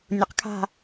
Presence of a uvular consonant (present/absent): present